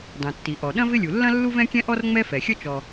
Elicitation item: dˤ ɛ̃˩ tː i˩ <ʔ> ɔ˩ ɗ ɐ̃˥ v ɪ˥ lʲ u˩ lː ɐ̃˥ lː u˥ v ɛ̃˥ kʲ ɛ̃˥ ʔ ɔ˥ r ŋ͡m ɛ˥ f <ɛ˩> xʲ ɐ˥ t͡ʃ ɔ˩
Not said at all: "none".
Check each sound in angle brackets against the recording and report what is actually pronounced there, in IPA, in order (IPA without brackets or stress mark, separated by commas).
ʔ, ɛ˩